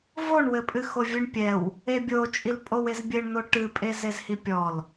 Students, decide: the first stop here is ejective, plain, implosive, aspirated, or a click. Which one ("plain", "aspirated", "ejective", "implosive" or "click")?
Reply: ejective